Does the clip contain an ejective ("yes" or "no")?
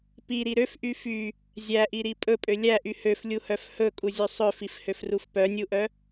yes